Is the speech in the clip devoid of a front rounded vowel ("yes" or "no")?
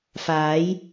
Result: yes